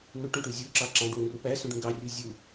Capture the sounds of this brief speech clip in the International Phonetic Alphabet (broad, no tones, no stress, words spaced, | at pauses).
nuʈũʈu zʲuǁɑ ǁɑ̃ɖwũru pæsũɖũ ɡɑrʲu zʲu